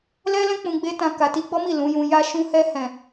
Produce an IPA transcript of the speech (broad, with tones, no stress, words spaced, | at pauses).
lɛ˦lɛ̃˦ k͡pũ˧ ɡ͡be˦tã˧ ka˨ti˧ɡ͡bɔ˦mi˦˨ lũ˨˦jũ˧ ja˧ʃũ˧hɛ˧hɛ̃˨